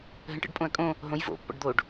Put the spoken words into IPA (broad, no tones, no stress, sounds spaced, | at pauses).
ɦ ə̃ ʈ ə̰ ɖ pʼ õ ɐ̯ kʼ õ | ɦ õ j v o̰ pː ɔ̰ ɖ d̪ o ɖ